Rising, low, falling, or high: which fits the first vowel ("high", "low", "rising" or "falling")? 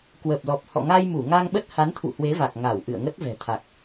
low